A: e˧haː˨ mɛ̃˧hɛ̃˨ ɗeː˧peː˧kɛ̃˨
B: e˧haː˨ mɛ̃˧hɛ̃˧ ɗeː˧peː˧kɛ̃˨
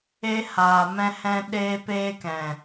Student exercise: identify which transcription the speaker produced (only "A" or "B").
B